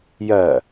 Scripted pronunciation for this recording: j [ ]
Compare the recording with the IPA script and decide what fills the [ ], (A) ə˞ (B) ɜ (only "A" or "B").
B